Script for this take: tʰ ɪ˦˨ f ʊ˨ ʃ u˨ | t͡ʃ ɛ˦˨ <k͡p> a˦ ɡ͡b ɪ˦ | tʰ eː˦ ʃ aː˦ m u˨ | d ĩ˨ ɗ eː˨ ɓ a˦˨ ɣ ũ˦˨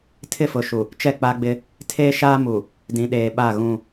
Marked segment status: correct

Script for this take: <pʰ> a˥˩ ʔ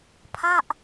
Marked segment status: correct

